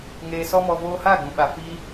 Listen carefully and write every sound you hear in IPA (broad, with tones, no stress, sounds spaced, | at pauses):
ŋ eː˧ s ɔ˦ m ɔ˧ v oː˧ h aː˦˨ ɡ͡b ũ˨ ɓ a˨ f iː˧